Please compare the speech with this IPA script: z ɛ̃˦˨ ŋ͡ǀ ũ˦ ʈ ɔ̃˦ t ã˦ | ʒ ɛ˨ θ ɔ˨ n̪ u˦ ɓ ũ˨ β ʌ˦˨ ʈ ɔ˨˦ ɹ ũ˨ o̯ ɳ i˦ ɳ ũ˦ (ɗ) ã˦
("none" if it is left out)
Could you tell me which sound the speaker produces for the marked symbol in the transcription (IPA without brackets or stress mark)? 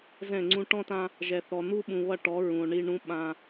ɓ